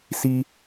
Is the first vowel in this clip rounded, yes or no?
no